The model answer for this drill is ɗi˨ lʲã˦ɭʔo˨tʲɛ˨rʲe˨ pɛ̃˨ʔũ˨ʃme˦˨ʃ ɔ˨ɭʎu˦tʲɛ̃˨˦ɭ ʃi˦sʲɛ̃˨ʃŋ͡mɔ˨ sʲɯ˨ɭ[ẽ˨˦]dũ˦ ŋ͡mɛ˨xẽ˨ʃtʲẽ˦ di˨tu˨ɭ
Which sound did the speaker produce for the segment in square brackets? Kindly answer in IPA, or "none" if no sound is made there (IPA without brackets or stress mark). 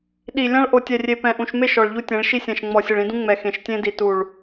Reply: ĩ˨˦